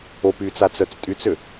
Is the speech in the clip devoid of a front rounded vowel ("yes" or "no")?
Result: no